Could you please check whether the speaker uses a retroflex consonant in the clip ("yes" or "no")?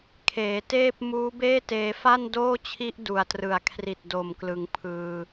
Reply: no